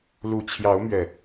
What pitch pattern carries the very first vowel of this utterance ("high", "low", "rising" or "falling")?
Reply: low